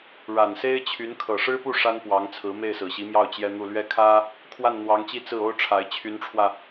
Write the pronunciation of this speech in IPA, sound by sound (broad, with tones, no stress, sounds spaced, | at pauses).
ɻ a˨˩ n s e˥ ɪ̯ t͡ɕʰ y˧˥ n kʰ ɤ˨˩ ʂ ɻ̩˥ p u˥˩ ʂ a˥ n p w ɑ˧˥ ŋ t͡sʰ ɹ̩˧˥ m e˥˩ ɪ̯ s ɹ̩˨˩ ɕ i˧˥ m j ɑ˥˩ ʊ̯ t͡ɕ j ɛ˥ n̪ u˥˧ l ɥ ɛ˥˩ kʰ ä˥ | kʰ w a˥˩ n n̪ w ɑ˧˥ ŋ t͡ɕ i˥˧ t͡s ɹ̩˥˩ o˥ ʊ̯ ʈ͡ʂʰ a˧˥ ɪ̯ t͡ɕʰ y˧˥ n ʈ͡ʂʰ w ä˧